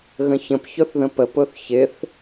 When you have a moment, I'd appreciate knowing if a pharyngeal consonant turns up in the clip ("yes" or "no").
no